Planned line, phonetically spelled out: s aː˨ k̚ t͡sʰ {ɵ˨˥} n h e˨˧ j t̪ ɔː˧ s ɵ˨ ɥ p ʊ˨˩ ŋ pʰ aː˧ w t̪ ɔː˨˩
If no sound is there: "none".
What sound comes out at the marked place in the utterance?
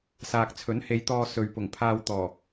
ɵ˨˥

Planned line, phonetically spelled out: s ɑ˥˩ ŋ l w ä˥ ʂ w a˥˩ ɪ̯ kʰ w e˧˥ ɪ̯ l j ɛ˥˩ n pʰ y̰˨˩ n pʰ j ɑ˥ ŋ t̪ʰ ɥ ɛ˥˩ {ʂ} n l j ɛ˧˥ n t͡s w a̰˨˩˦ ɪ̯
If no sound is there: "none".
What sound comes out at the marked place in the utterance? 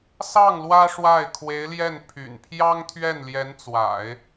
none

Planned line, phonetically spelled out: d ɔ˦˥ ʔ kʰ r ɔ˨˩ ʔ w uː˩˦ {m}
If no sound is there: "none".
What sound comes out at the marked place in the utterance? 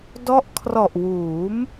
m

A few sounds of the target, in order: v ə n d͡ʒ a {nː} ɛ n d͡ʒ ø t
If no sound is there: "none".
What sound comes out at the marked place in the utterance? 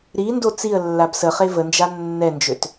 nː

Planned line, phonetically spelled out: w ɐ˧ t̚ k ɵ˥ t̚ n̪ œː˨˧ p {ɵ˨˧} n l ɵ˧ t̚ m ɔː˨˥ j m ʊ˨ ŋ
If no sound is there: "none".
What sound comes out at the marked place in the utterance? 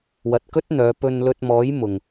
ɵ˧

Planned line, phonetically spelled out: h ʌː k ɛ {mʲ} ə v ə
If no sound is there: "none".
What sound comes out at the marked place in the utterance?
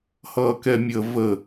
mʲ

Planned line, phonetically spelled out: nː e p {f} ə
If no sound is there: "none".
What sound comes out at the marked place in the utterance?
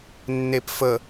f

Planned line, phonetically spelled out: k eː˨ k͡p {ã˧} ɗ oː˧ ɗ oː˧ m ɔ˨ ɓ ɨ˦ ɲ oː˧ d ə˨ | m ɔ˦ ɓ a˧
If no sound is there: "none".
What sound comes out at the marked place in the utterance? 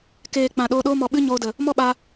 ã˨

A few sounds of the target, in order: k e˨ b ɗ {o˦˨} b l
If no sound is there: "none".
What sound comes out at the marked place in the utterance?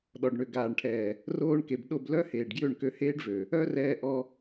o˦˨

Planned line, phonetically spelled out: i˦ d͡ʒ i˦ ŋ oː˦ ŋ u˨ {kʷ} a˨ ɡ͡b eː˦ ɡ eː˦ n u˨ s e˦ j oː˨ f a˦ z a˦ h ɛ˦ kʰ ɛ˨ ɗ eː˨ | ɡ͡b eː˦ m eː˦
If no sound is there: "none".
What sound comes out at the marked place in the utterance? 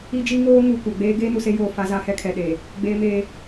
kʷ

